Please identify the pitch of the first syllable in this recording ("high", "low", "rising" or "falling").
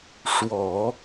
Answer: low